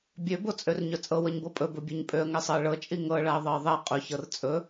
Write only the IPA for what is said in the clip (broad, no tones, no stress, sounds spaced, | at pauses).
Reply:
bʲ ø b o t͡sʼ ø r ɲ ɵ t͡sʼ ɤ w ɤ ɲ b ɤ pʼ ɵ b ɵ bʲ ø ɲ pʼ ø ə̯ ŋ ɛ sˤ ɤ ə̯ ɭ ɤ t͡ʃʼ i ŋ ɤ ɭ a ə̯ ðˤ ɤ ɪ̯ ðˤ ɛ qʼ ɵ ç ɤ r t͡sʼ ɵ